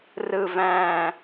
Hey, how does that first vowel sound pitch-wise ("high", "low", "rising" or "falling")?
low